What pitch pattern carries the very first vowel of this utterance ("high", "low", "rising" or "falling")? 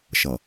low